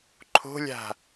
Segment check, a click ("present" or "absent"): present